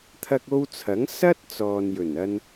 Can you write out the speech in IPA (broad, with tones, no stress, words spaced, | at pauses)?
t̪ʰɐ˧k̚o˧wt͡sʰɐ˨˥ŋ sɐ˥t̚ t͡sɔː˨njɵ˨˩nɐ˧n